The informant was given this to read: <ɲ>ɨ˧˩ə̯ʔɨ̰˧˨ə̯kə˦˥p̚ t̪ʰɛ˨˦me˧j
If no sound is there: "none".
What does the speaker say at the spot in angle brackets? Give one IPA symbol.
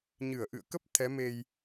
ɲ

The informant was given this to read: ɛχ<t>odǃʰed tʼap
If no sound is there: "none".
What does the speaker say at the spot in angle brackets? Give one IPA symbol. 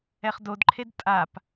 d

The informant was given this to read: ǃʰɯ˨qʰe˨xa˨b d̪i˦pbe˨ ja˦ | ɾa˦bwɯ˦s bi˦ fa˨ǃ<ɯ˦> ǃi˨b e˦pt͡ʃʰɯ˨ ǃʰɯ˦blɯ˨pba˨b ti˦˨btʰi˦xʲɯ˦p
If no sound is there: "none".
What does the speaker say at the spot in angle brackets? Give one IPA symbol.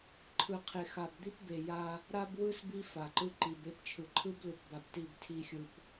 ɯ˦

